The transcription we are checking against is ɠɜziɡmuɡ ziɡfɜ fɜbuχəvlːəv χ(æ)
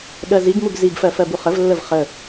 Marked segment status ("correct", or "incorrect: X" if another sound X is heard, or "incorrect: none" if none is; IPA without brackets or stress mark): incorrect: ə